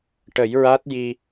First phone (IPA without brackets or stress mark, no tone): ʈ